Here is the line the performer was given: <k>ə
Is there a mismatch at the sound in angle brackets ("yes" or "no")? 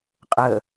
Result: yes